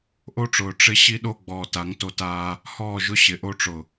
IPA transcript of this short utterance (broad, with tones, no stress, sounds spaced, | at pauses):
ʔ o˦ ʈ͡ʂ ʊː˨ ʈ͡ʂ ɪ˦ ɕ i˦ ɗ o˦ ɡ͡b ɔː˨ t a˨˦ ŋ t o˦ t aː˦ | h ɔː˦˨ ʒ ʊ˦ ɕ ɪ˨ ʔ o˦ ʈ͡ʂ ʊ˨